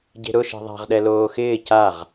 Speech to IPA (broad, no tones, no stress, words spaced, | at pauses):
ɟe̤ɾʊ ʃe̤ðˤa̤ʁ ɗɛloːxɪː caʁ